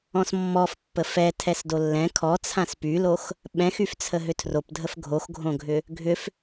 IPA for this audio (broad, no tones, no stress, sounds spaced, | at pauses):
ɔ̃ s mː ɔ f pː ə f ɛ tʰ ɛ s d o lː ɛ̃ kʰ ɔ t͡sʰ ã s p y l o x | ɓ ɛ̃ x y f t͡sʰ ə ɦ ʏ tʰ r o p dʱ ə f ɡʱ o x ɡʱ õ ɡʱ ʏ | ɡʱ ʏ f